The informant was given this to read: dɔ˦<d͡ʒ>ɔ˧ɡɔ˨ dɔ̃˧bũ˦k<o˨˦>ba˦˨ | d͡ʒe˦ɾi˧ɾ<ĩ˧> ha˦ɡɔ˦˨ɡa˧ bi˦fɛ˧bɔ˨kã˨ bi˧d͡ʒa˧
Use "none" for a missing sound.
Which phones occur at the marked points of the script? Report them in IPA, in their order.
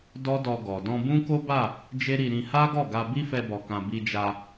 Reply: d, o˦, ĩ˧

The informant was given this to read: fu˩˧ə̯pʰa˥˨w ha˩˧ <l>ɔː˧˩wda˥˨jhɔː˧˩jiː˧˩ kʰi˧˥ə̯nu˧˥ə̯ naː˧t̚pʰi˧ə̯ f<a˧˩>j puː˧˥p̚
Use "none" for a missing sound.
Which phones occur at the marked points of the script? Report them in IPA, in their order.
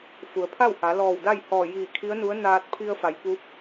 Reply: l, a˩˧

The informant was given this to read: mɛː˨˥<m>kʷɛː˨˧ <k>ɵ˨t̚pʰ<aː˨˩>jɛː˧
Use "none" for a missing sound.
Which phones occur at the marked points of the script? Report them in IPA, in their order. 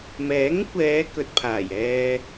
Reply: ŋ, k, aː˨˩

